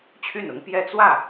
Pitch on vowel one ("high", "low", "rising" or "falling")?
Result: falling